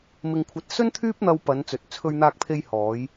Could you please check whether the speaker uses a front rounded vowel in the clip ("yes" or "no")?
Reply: yes